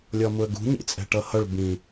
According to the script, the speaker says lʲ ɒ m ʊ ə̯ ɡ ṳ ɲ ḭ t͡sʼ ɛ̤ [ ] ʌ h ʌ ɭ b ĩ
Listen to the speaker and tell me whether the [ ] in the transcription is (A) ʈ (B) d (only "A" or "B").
A